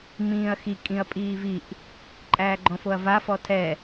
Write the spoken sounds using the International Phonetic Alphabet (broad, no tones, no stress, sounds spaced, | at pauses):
m ĩː ɐ̯ x i kʼ ĩ ɐ̯ pʼ iː v i ʔ | ǃʼ æː ɡ͡ǃ ɔ̃ f o ɐ̯ v a f ɔ tʰ ɛ